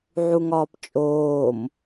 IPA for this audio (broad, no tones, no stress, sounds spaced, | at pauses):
ʕ u ŋ ɒː p t͡ʃʼ oː m